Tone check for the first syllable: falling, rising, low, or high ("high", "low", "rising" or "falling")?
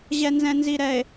low